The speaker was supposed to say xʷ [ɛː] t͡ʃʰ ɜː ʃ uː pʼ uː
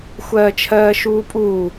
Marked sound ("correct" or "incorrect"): incorrect